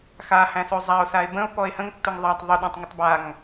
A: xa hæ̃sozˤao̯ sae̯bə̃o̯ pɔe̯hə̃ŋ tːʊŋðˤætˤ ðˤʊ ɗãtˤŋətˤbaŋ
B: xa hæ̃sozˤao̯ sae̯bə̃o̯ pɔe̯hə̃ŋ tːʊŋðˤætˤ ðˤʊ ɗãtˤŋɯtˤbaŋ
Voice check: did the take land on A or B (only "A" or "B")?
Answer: A